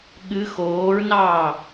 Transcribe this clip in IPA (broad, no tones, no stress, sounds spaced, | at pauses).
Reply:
ɠ ɨ x oː ɹ n ɑː